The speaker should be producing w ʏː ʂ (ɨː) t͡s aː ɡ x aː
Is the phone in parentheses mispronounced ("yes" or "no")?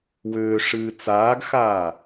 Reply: no